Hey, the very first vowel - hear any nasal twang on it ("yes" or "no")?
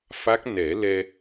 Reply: no